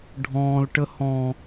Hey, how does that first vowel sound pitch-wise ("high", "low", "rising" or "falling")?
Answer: high